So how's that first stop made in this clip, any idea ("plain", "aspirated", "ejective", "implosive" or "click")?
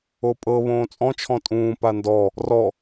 ejective